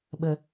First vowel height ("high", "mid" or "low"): mid